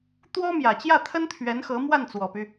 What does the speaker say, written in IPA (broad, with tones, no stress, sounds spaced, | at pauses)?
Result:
t̪ w ɔ˥ m j ä˨˩ t͡ɕ j ä˥˩ t̪ʰ ə˥ n t̪ʰ ɥ ɛ˧˥ n x ɤ˧˥ m w a˥˩ n t͡s w ɔ˨˩ p y˦